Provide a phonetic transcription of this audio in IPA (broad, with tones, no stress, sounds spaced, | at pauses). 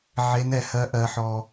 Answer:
ʕ e˨˦ n ɛ˨ h ɜ˨˦ ʔ ɜ˨ ħ ɔ˨